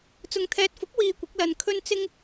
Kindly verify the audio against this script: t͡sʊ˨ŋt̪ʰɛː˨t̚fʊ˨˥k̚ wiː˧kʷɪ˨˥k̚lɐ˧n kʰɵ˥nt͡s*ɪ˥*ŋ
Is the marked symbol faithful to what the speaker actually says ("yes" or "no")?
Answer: yes